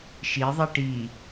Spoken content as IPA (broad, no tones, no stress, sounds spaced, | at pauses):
ʃ i ðˤ i ʈ i